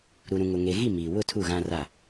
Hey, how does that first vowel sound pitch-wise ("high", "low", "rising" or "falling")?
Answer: low